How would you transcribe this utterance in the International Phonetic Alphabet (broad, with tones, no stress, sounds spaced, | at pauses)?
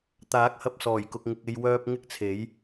t̪ aː˨˥ k̚ h ɐ˧ p̚ s ɔː˨˩ j k ʊ˨ k̚ ŋ ɪ˨ k̚ e˧ j w œː˧ p̚ ŋ ɪ˥ k̚ t͡sʰ e˨˥ j